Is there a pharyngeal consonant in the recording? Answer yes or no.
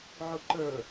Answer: yes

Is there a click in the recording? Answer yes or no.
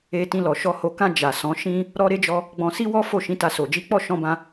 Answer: no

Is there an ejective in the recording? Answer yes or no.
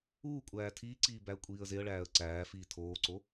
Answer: yes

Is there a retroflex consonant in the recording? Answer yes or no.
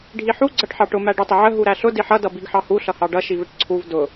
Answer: yes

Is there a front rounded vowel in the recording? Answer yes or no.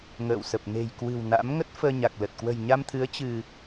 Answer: no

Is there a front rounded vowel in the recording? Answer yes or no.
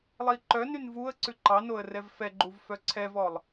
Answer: yes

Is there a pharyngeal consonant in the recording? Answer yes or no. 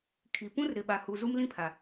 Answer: no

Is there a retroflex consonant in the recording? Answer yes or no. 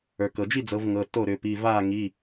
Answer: no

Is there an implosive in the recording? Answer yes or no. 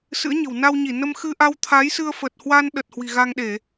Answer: yes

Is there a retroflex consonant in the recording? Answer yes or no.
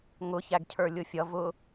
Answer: no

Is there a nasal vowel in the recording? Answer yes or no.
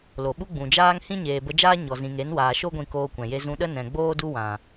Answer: yes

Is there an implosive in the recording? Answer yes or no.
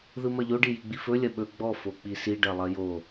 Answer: yes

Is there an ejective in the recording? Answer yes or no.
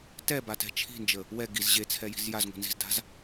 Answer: no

